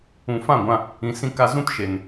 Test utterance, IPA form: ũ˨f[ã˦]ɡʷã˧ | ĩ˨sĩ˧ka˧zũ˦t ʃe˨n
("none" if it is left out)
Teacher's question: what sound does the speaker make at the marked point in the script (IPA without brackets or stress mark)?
ã˦˨